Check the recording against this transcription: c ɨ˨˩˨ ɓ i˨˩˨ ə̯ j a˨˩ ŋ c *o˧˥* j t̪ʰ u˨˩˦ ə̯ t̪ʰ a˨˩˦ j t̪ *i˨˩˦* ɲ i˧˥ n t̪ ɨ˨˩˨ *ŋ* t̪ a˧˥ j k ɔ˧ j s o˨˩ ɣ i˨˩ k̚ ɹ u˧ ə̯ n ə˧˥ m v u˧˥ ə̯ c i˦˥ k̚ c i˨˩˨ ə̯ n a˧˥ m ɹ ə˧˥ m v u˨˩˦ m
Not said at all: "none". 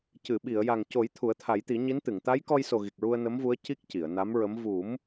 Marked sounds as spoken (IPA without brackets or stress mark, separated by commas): o˨˩˦, i˨˩˦, ŋ